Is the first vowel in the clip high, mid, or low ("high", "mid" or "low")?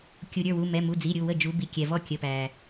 high